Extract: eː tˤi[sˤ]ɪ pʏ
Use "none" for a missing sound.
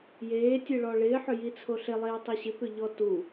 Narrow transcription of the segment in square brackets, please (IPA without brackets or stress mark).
ɕ